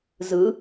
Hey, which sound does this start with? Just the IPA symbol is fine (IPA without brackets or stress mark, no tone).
z